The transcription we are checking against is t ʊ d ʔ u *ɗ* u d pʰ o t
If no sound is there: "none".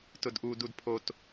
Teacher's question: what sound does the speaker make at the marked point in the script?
d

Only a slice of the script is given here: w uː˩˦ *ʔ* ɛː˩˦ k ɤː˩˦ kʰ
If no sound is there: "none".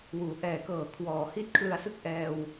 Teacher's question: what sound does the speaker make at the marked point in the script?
ʔ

